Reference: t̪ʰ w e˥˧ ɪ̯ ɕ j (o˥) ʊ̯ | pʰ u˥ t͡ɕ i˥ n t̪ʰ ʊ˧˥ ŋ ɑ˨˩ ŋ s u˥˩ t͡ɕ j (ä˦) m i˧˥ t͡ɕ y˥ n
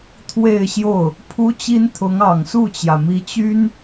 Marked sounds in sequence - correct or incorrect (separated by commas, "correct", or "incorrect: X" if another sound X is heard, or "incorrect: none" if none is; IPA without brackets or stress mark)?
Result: incorrect: o˥˩, incorrect: ä˩